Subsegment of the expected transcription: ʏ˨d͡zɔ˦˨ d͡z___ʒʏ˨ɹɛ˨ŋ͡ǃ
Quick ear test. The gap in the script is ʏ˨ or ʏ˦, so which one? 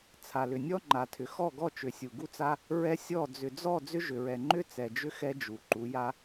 ʏ˦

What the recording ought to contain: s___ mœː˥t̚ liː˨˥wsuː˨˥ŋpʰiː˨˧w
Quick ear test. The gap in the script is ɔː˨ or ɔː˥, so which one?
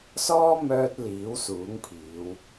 ɔː˥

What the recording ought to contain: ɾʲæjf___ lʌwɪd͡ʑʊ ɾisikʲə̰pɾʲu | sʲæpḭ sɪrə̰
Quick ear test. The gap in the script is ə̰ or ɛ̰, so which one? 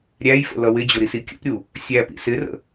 ə̰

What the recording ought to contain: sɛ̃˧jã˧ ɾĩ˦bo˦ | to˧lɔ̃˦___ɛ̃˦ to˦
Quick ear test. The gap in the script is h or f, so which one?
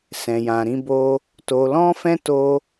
f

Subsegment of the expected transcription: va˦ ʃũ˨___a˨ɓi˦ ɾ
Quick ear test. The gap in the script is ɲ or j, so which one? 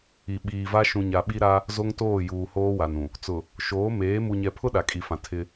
ɲ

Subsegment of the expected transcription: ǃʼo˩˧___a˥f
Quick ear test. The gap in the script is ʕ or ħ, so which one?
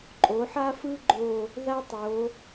ħ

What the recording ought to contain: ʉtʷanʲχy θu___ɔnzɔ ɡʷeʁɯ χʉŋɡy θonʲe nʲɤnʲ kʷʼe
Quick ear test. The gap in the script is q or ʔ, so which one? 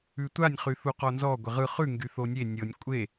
q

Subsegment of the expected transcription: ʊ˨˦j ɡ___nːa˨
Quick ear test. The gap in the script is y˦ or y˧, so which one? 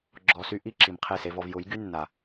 y˦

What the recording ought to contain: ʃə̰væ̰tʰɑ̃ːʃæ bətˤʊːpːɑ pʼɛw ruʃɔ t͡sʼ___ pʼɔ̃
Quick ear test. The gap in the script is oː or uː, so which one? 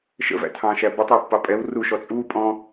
uː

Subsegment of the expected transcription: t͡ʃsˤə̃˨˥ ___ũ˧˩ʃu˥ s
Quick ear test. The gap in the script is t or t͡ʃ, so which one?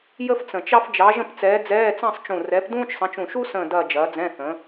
t͡ʃ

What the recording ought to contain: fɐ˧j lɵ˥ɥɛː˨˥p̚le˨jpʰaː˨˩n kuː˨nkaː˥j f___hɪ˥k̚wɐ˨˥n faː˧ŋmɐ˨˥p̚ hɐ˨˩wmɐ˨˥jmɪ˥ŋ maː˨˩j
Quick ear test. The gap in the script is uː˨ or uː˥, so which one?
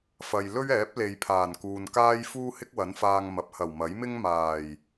uː˥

